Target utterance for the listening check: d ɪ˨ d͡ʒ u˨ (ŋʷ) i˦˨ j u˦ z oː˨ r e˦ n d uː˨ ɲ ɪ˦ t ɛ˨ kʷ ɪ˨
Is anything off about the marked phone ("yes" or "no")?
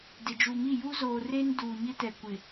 yes